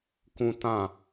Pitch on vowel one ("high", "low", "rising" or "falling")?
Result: high